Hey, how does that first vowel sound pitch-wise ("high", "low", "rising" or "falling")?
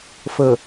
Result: low